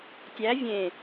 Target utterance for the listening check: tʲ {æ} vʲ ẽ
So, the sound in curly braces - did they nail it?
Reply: yes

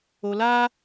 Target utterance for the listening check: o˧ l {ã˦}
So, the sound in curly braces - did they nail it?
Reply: no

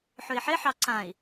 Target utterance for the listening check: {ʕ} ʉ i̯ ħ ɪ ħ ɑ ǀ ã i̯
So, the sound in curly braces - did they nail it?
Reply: no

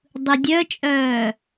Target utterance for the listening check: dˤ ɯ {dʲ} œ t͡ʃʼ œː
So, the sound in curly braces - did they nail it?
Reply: yes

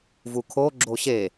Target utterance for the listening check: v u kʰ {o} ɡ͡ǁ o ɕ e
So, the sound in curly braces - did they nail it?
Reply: yes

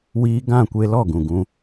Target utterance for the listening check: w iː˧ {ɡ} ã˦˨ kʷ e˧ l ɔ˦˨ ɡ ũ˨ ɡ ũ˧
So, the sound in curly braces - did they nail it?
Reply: yes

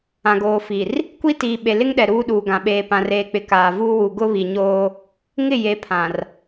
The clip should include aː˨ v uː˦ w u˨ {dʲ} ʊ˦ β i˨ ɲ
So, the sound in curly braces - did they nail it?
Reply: no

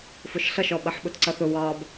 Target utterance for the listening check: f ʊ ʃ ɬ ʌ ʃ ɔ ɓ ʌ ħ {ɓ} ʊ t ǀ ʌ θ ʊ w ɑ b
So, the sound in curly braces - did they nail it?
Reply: yes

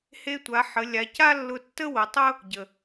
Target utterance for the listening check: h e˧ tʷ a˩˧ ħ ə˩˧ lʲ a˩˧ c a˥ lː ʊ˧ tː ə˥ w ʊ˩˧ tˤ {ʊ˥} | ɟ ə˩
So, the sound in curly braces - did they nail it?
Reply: yes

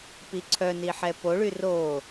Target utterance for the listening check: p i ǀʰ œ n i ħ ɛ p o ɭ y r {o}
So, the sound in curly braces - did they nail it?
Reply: yes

